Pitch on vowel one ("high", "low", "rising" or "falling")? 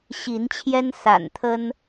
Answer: rising